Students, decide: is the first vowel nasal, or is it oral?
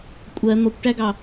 oral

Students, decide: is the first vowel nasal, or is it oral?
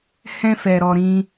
nasal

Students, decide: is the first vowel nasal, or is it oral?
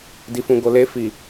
oral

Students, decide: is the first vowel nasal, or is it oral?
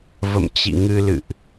oral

